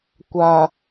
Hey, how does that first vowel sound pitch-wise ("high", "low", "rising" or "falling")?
low